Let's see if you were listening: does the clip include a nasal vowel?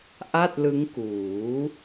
no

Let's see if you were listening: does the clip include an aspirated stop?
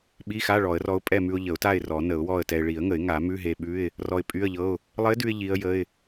no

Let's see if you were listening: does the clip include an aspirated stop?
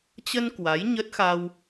no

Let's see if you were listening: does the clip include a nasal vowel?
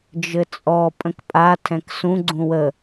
yes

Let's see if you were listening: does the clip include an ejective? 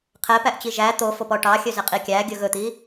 yes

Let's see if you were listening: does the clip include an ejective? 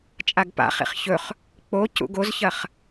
yes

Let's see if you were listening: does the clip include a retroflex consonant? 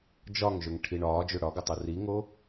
yes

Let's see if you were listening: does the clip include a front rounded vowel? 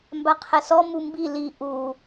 no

